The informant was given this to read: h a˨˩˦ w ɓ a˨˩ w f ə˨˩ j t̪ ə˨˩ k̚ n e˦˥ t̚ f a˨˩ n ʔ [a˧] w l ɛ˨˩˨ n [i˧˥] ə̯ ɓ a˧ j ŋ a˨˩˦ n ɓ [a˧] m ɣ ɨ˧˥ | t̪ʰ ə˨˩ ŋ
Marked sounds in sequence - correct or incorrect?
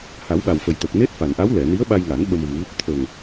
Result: incorrect, correct, incorrect

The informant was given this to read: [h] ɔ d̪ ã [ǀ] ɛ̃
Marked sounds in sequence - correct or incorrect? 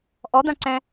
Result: incorrect, correct

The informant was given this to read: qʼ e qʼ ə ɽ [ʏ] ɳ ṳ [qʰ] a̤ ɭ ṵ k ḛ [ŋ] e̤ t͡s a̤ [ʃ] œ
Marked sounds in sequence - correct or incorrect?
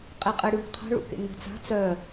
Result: incorrect, correct, correct, incorrect

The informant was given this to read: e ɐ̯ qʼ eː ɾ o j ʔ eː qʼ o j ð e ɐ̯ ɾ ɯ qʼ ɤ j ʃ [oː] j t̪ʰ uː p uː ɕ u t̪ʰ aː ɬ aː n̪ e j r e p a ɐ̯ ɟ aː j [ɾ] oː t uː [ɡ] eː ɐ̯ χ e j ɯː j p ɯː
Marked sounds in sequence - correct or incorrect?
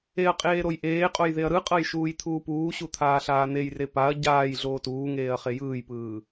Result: incorrect, incorrect, incorrect

